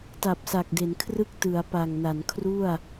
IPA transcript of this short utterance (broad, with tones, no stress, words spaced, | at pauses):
ta˨˩p̚sa˨˩k̚de˩˦nkʰrɯ˥˩k̚ tɯ˩˦a̯pa˨˩ŋna˩˦nkʰru˥˩a̯